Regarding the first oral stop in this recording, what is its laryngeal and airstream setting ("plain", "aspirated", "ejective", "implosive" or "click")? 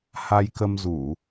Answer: plain